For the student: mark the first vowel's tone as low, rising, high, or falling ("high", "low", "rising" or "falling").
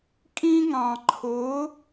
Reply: high